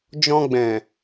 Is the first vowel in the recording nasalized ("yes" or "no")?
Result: yes